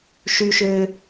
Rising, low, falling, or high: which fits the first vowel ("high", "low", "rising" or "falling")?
high